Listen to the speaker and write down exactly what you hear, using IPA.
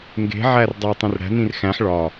ŋ ɡ e̤ ʕ æ r dˤ e tˤ ẽ r ɽ æ̤ n ĩ r x æ̃ ħ ɭ ɒ

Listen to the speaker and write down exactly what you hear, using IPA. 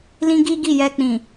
l ĩ˦ ɡ i˦ ɡ i˦˨ j ɛ˧ k͡p ĩ˨

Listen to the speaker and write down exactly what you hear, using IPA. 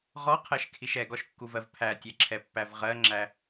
ʁ ɔ qʰ ɜ ʃ kʰ i ʃ ɛ ɡ ɔ ʃ kː u v ɜ v pʰ æ tʲ ɛ ǁʰ ɛ pː æ v ʁ ɜ ŋ͡ǁ æ

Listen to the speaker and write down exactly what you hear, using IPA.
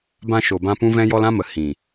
b ã˧ ʃ o˨ b ã˧ p ũ˦ v ɛ̃˦ j ɔ˦ l ã˦ m ə˨ h ĩ˨

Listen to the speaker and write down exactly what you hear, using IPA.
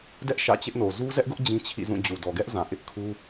d ɛ˦ ʔ ʃ ä̰˦˨ t͡ɕ ɪ˦ ʔ n o˨ z u˦ z ɛ˦ ʔ ɡ ʊ˦ ʔ d͡ʑ ĩ˦ t͡ɕʰ ḭ˦˨ z ũ˦˨ d͡ʑ u˨ d ɔ˨ ɡ ɛ˦ ʔ z ã˨ ʔ ɪ˦ ʔ kʰ u˦

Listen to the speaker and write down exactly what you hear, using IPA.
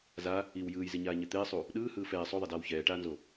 z a | i w j ɯː j z i ɲ aː ɲ ɛ t̪ eː sˤ u | ɗ ɯː h ɯː f ɛː sˤ o ðˤ ɛ d aː w ç ɛː ʈ aː n z o

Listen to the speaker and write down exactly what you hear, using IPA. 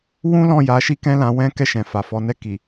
w ũ˦ l ɔ̃˦˨ j a˨˦ ʃ i˦ k ɛ̃˦ l ã˧ w ɛ̃˦ k ɛ˦˨ ʃ ɛ̃˨ f a˨ f ɔ˨˦ n ɛ˦˨ k i˨

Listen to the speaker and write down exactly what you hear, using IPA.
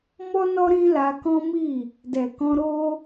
m ɔ˦ n ɔ˦ ɾ ĩ˦ l a˧ k ɔ̃˦ m i˦˨ | d ɛ˨ k ɔ̃˧ ɾ o˦

